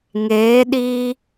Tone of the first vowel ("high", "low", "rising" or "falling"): rising